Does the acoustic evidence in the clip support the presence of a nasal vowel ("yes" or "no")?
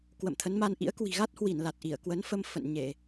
no